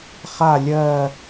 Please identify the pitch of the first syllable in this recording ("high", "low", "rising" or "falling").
low